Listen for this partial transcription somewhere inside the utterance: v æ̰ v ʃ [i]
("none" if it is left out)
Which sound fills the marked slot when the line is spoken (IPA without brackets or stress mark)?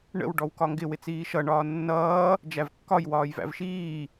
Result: iː